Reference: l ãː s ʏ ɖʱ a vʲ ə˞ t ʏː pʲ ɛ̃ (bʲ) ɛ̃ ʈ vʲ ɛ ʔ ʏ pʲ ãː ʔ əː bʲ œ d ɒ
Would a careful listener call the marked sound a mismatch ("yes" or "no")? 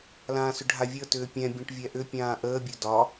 no